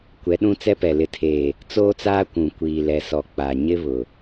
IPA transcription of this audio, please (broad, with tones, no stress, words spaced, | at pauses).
kʷɛ˨˦ɗũ˦t͡sɛ˦pɛ˨ lɪ˨tʰeː˨ | t͡soː˦t͡saː˦ kʷũ˨ kʷiː˨lɛ˨sɔ˨ k͡pa˨ɲɪ˦ βʊ˨